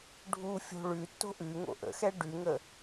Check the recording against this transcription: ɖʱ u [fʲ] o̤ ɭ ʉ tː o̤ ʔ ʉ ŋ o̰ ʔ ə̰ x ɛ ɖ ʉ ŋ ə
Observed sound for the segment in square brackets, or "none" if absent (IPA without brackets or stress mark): fʲ